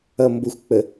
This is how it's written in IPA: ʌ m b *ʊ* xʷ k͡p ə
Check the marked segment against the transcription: correct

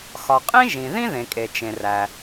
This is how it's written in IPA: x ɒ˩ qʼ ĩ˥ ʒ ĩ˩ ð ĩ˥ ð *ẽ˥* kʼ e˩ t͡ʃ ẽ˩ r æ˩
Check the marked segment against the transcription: incorrect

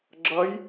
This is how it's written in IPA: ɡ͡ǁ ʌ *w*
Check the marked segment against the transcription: incorrect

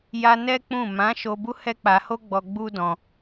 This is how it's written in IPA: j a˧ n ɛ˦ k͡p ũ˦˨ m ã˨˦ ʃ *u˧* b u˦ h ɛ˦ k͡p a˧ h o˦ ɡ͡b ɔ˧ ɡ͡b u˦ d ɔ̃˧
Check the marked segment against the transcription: incorrect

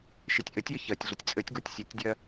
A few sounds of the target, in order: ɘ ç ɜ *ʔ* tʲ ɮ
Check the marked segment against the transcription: incorrect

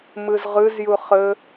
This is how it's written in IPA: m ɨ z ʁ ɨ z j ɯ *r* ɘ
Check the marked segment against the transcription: incorrect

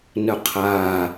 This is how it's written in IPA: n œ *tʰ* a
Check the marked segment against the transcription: incorrect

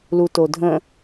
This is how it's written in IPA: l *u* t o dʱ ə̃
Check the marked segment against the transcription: correct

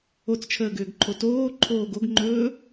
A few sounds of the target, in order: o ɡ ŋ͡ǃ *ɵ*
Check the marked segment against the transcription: incorrect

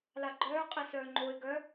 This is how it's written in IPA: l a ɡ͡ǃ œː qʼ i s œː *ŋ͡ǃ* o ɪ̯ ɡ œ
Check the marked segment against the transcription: correct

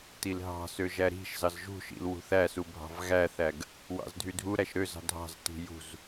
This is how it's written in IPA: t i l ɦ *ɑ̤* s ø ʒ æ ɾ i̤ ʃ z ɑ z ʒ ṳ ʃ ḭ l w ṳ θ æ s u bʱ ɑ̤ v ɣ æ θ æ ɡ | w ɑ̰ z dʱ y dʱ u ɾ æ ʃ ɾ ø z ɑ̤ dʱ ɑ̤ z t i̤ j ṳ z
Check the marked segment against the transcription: correct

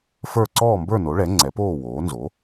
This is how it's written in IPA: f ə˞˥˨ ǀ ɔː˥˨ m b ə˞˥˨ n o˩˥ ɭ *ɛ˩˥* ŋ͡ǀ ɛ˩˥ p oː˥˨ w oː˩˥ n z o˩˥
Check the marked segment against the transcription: correct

